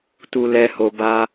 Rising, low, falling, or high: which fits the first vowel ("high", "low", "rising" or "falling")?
low